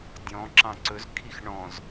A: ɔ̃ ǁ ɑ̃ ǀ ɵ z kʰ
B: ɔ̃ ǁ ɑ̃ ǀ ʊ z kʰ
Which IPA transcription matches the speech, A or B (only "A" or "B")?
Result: A